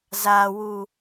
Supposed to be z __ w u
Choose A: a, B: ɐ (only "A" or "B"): A